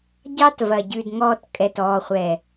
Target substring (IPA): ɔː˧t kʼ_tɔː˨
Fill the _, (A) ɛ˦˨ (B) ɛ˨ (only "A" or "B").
B